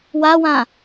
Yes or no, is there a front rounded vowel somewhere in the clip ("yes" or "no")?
no